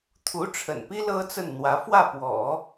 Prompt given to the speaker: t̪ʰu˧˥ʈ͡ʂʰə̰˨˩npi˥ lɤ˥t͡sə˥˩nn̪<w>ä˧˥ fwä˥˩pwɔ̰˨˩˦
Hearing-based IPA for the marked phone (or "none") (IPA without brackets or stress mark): w